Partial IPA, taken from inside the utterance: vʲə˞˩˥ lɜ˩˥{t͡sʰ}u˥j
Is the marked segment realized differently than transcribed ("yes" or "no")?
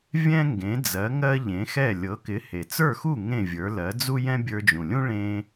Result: yes